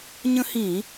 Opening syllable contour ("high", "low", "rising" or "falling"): high